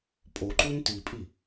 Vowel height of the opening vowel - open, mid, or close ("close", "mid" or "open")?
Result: mid